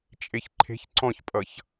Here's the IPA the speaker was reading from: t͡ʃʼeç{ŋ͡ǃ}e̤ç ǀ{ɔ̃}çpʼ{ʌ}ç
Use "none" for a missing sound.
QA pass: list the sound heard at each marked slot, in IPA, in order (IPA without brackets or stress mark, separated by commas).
ǃʰ, ɔ̃, ʌ